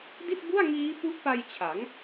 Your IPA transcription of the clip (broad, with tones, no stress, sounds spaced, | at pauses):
d i˥˩ t̚ b u˥˩ a̯ ŋ iː˦˥ p u˦˥ ʔ p a˧ j t͡ɕʰ a˩˦ ŋ